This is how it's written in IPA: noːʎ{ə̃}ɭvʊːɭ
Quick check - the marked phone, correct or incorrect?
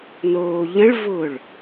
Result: correct